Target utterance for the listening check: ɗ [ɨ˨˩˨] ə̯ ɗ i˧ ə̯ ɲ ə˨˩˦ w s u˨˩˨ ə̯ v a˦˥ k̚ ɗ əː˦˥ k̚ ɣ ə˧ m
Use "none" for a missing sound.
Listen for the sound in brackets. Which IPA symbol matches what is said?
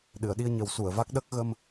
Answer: ɨ˨˩˨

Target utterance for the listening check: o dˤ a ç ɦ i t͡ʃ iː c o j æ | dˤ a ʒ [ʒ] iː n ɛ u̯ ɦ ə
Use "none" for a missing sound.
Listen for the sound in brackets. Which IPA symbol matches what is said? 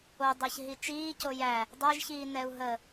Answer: ç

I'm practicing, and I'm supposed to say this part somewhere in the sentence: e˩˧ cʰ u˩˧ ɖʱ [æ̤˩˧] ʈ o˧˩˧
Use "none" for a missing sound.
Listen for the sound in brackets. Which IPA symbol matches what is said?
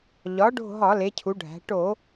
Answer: æ̤˩˧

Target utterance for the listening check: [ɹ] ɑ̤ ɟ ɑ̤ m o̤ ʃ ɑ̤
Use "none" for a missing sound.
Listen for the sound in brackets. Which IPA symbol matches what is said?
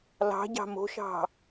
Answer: l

